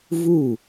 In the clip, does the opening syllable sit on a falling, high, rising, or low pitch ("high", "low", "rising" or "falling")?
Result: falling